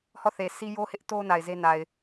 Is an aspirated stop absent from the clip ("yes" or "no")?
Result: yes